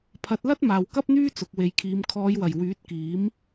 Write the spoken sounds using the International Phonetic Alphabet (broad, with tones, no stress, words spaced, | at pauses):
pʰɐ˨˥t̚lɐ˥t̚ maː˨wkɐ˥p̚n̪yː˥ t͡sʊ˨k̚we˨˧jkʰiː˨˧m kʰɔː˨˧jwɐ˨˩j wyː˨˥t̚kiː˨˥m